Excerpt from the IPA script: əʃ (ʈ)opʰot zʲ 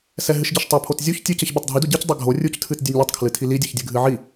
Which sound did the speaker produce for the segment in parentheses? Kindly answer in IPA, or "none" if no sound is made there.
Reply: tˤ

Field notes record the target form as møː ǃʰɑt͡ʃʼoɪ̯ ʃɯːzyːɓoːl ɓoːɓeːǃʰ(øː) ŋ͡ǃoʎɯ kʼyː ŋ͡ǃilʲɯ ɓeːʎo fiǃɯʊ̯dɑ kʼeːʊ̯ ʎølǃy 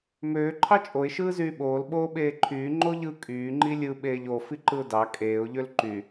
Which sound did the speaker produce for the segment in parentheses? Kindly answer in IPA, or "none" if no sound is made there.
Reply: yː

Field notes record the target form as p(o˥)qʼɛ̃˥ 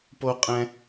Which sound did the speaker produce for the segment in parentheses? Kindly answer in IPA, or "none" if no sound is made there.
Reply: o˥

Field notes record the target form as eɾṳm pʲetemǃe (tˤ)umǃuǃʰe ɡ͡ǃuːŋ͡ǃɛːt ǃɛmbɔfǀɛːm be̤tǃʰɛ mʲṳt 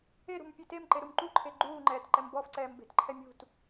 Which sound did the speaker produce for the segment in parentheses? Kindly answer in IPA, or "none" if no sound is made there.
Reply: ɾ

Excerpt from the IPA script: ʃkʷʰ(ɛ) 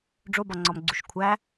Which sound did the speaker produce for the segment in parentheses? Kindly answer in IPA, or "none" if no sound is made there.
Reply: æ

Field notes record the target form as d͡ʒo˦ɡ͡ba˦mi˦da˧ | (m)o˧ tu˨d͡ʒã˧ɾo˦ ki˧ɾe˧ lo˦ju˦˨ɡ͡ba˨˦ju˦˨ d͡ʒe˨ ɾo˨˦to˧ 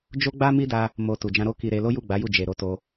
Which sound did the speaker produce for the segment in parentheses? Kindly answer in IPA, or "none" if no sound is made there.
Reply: m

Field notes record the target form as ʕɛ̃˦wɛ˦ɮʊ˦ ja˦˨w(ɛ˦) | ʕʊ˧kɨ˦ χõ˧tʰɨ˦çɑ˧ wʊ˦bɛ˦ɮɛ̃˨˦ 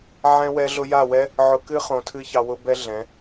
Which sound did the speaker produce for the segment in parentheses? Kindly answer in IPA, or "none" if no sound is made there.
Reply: ɛ˦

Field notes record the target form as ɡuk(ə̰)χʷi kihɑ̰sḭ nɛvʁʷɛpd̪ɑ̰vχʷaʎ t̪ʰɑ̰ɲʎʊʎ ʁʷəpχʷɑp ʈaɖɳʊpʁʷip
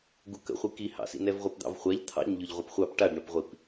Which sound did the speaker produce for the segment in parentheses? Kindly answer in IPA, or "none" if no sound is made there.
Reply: ə̰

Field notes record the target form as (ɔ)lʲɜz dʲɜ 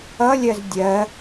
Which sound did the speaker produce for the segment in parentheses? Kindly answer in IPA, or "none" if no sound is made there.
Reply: ʌ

